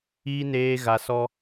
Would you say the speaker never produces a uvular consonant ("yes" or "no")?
yes